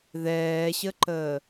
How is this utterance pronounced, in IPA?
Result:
ð ɛː ɕ ə ǃ əː

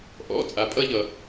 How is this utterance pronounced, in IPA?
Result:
ʔ ɔ̰˩˧˩ t͡sʼ a˩ pʼ ʌ˧ ʎ ʌ˩

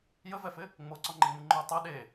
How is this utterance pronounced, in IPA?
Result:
j ə v ɛ f ɪ | ŋ͡m o ǀ ɔ ŋ͡ǃ ɪ ŋ͡m ɨ ŋ͡ǃ o tˤ ɛ ɗ e

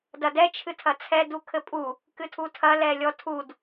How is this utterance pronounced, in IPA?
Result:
d ɐ d ɛ t͡ʃʰ ɨ tʰ ɐ t͡sʰ ɛ d u kʰ ɘ pʼ u | k ɨ tʰ u tʰ ɐ l ɛ lʲ ɔ tʰ u d

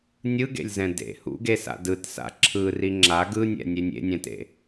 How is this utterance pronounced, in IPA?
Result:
nʲ ɯ ɡ ḛ lʲ z ɛ̃ d ḛ h ṵ ɡ e s a̰ d ɯ t s a̰ ǁʰ ɯ r i ŋ͡ǁ a ɡ ɯ nʲ ɛ̰ nʲ e nʲ ḛ nʲ ɛ̃ t ḛ

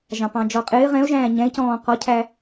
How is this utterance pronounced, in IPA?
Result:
ʒ ɑ̃ p ɑ̃ d͡ʒ ɔ qʼ ɪː ʁ ɛ̃ ʊ̯ ʒ æ̃ː ɲ ɛ̃ ɪ̯ c ɔ̃ː q ɔ cʰ æ

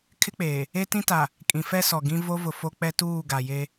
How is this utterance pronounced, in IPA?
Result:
kʰ ɪ˦ k͡p eː˨ | e˦ t ĩ˦ t a˨ | kʼ ĩ˨ f ɛ˦ s ɔ˨ ɡ ĩ˦ v o˦ v ʊ˨ f o˦ k͡p ɛ˦ t uː˦˨ ɡ a˨ j e˦

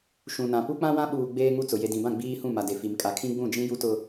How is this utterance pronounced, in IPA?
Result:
ʃ ũ˨ n ã˨ p u˦ k͡p ã˦ w ã˦ ɓ uː˨ ɡ͡b eː˦ ŋ u˦ t͡s ʊ˨ j e˨ d ĩ˨ b ã˦˨ ɡ͡b iː˦ h ũ˦˨ m a˨ d e˨ f i˨ m kʼ a˨ kʰ ĩ˦ ɡ͡b ũ˦˨ d͡ʒ ĩ˦ j u˦ t ʊ˦

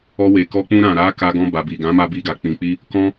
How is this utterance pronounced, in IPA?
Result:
ɔ˧ w e˨ k ɔ˧ k͡p ũ˧ ɾ ã˨ ɾ a˨˦ k a˧ ɡ ɔ̃˧ b a˨ b i˨ ɡ ã˨˦ m a˧ b i˧ ɡ a˨ k͡p ĩ˨ k͡p i˧ | k ɔ̃˧

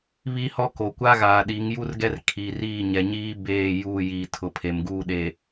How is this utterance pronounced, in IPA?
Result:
β i˦ h ɔ˦ k o˨ kʷ a˦ ɣ aː˨ ɗ i˨˦ ŋ j u˦ r ɡ ɛ˦ r kʰ i˨ r iː˦˨ ɲ ɛ˨ ɲ iː˦ b eː˦˨ j uː˦˨ j iː˨ tʰ ʊ˨ pʰ e˨ m ɡ uː˦ ɗ e˨

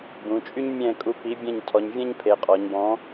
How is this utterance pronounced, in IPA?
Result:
b ũ˩˧ t͡ʃʼ y˥ ɲ mʲ ɛ̃˦˨ kʼ u˨˥ p i˨˥ bʲ ɛ̃˦˨ ɲ tʰ ɔ˩˧ ɲ vʲ ɛ̃˥ ɲ pʰ e˩˧ qʼ ɔ˩˧ ɲ b ɔ̃˨˥

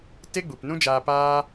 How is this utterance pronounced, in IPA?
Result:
t e˦ ɡ͡b u˨ p n ũ˦ d͡ʒ aː˧ p aː˦

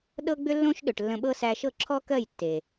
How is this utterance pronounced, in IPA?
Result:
ɗ ɤ˦ ɡ͡b ʏ˦ lː õ˦ ʃ ɗ ʏ˨ ʈ lː ə̃˧ ɓ ɤ˦ s æ˧ ʃ ɤ˦˨ ǁʰ ɔ˦ k ɜ˦˨ j tː e˨

